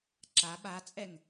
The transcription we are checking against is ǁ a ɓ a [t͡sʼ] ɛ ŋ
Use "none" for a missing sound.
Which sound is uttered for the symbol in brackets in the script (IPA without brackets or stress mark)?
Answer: t͡sʼ